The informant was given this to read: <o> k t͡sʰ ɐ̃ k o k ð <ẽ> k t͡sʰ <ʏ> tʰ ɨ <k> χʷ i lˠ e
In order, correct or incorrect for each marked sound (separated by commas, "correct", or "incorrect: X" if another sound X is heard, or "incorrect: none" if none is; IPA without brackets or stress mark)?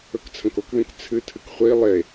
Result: incorrect: ɵ, correct, incorrect: ɨ, correct